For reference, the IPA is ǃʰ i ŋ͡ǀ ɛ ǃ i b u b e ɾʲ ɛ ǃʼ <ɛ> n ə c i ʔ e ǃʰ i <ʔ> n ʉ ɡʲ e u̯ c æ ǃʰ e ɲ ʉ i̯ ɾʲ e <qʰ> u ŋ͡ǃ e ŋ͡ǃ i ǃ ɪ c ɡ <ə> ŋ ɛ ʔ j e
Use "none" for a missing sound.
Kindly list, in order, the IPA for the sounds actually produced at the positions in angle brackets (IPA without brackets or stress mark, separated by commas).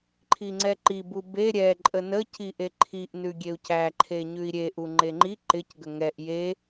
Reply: ə, ʔ, ʔ, ə